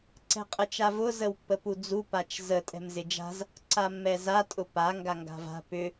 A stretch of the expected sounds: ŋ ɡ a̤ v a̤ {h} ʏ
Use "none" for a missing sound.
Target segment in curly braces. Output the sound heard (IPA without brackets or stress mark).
p